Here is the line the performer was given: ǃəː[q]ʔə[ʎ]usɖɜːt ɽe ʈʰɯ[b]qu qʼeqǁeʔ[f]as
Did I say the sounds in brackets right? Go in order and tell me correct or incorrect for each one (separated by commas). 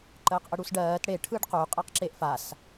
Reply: correct, incorrect, incorrect, correct